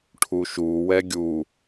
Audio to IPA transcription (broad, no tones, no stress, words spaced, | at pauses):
ʈʰuʃu wɛɡʲu